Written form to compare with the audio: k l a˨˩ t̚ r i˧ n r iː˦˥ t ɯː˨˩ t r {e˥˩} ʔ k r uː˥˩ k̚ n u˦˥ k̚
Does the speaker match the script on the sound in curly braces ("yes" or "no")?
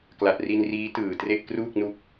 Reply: yes